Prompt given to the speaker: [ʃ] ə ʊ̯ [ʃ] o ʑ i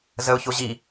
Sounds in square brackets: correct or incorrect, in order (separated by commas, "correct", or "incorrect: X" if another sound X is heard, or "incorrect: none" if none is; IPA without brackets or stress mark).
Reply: incorrect: z, incorrect: ç